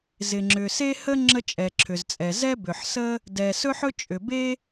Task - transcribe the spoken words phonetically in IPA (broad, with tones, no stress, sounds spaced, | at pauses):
z ɪ˩ ŋ͡ǁ ʏ˩ s e˥ h ə˥ ŋ͡ǁ ə˥ t͡ʃʼ ɛ˩ ǁʰ ʏ˩ z t͡sʼ ɛ˩ z ɛ˥ b ʏ˩ ħ s ə˥ | d ɛ˩ s ɵ˥ ħ ɵ˥ t͡ʃʼ ʏ˩ b e˥